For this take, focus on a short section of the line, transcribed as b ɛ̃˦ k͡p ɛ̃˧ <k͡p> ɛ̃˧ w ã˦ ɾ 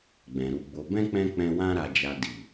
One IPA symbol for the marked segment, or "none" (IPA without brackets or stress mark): k͡p